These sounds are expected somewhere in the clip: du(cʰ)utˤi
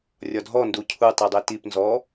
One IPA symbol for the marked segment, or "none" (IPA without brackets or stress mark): cʰ